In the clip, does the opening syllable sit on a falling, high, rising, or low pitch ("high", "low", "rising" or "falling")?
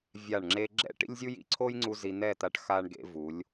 falling